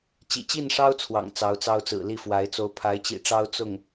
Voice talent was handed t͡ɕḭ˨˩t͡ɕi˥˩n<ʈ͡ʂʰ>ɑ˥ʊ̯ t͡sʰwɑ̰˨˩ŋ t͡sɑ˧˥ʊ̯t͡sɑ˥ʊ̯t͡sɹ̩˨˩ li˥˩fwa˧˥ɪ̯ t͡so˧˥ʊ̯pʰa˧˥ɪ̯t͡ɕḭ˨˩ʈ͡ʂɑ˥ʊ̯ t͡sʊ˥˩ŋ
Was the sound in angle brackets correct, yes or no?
no